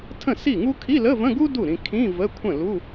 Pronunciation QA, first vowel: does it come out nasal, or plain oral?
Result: nasal